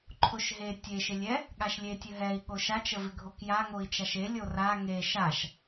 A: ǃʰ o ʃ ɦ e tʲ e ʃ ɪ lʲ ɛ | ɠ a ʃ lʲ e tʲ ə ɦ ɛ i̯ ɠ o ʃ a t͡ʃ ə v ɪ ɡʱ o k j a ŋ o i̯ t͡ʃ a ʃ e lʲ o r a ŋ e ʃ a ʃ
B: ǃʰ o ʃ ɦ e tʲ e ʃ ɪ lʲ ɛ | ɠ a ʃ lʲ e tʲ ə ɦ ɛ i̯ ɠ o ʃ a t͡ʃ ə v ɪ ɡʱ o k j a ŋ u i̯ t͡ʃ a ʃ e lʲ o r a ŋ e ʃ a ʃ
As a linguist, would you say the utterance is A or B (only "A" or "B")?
A